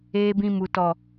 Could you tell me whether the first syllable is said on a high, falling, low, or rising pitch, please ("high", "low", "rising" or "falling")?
low